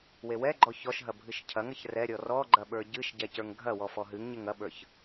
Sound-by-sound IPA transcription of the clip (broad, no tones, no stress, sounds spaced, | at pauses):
w e w ɛ ɡ͡ǃ ɔ ç ɔ ʃ ɦ ɐ bʱ ɨ ʃ cʰ ɐ ŋ ɐ ç r ɛ ɾʲ ɔ r ɔ ɡ͡ǃ ɐ ɓ ə˞ ɟ ɨ ʃ ɟ ɛ c ə˞ ŋ ɡʱ ɐ w ɔ f ɔ ɦ ɨ ŋ ɲ e ŋ ɐ ɓ ə˞ ç